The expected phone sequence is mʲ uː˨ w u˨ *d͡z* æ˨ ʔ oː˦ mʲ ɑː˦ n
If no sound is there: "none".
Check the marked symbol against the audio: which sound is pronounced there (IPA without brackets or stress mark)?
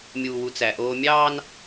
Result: t͡s